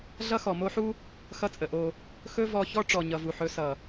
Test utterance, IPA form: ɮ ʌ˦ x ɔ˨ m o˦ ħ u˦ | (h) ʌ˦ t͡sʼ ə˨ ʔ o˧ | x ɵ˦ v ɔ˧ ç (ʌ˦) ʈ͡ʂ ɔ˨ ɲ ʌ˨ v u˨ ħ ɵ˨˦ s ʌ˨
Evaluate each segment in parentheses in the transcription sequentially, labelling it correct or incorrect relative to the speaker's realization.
incorrect: x, incorrect: ɔ˦

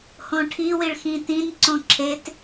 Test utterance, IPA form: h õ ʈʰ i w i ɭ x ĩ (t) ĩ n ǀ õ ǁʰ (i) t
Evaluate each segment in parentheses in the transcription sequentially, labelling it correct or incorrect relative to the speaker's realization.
correct, incorrect: e

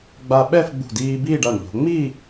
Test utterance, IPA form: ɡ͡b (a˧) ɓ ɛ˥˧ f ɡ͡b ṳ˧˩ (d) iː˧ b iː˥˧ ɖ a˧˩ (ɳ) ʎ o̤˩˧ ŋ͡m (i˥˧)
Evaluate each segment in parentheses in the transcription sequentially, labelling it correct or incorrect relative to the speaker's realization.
correct, correct, correct, correct

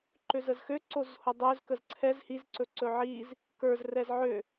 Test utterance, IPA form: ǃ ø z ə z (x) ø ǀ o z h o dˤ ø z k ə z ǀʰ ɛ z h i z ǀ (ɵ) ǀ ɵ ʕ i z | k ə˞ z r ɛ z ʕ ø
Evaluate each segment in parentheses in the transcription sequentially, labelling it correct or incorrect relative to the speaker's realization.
correct, correct

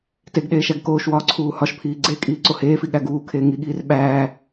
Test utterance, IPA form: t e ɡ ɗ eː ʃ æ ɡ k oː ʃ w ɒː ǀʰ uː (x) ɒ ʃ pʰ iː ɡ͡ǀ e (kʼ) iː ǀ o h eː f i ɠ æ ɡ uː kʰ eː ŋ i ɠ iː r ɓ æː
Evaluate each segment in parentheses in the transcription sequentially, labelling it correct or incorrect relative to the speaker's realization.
incorrect: h, correct

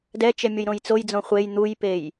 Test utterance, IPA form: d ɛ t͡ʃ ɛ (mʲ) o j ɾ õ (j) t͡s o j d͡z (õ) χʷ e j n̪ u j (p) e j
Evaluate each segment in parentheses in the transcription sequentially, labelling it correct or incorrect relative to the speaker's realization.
correct, correct, correct, correct

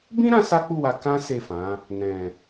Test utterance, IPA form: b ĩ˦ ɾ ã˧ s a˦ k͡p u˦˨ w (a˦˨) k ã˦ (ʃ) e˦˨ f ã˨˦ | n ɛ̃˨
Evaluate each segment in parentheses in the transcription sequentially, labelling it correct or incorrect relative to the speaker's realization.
incorrect: a˧, incorrect: s

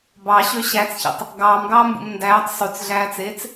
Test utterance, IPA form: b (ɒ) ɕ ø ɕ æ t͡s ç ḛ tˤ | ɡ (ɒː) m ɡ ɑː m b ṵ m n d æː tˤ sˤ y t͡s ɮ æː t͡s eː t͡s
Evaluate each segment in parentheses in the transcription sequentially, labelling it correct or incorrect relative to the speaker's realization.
incorrect: ɑ, incorrect: ɑː

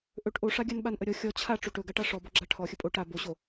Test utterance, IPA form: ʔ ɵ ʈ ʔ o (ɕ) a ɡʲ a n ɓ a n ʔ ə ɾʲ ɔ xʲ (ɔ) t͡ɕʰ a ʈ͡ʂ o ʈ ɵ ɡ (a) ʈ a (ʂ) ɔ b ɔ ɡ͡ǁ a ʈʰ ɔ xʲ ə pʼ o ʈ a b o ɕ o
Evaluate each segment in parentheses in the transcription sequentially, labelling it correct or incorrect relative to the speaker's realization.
incorrect: ʂ, correct, correct, correct

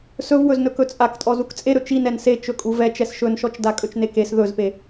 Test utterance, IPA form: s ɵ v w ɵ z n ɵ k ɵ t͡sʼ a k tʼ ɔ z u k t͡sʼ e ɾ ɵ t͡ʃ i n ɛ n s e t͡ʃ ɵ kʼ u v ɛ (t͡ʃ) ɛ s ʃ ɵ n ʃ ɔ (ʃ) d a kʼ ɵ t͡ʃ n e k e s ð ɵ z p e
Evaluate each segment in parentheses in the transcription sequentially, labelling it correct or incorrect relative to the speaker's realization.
correct, incorrect: t͡ʃ

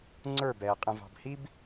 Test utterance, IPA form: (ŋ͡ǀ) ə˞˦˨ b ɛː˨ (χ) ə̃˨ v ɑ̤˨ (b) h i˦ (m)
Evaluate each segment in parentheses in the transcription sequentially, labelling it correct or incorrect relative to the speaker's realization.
correct, incorrect: qʼ, correct, incorrect: b

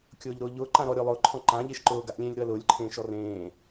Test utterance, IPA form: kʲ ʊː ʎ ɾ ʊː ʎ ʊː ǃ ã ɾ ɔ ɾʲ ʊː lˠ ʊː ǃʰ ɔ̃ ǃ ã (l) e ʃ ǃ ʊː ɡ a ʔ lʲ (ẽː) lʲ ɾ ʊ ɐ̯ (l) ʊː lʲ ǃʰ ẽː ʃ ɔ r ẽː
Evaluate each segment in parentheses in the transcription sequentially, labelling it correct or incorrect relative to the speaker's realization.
incorrect: ʎ, correct, correct

